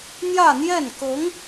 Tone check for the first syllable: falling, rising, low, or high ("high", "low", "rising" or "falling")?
falling